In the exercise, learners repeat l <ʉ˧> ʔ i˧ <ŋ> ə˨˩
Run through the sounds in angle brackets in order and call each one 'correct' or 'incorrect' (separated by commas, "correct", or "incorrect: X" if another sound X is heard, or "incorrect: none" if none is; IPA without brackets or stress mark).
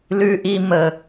correct, incorrect: m